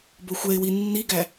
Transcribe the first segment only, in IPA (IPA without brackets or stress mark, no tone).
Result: b